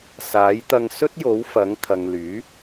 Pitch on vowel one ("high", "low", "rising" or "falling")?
rising